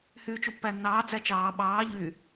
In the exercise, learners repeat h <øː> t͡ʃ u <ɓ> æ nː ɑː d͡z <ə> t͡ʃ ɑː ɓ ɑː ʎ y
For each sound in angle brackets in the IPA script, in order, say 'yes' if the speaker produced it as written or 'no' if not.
no, no, no

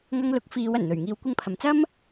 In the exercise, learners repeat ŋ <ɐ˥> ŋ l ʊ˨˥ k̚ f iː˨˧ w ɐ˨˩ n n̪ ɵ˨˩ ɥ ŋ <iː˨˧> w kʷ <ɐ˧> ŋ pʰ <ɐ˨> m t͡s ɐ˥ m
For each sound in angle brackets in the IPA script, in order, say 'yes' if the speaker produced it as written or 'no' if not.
no, yes, yes, yes

